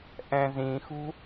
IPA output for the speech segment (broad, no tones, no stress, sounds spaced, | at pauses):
ʔ ɛ̃ z ĩ x ṳ